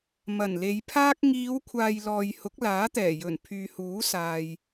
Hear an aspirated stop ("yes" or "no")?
yes